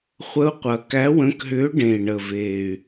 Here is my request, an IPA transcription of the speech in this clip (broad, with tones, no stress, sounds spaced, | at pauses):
χʷ ə˧˥ u̯ qʷ ɐ˨˩ k æ˧˥ w ə̃˧˥ k ɦ ʏː˧˥ ɖ ẽ˨˩ i̯ ɳ ə˨˩ v eː˨˩ y̯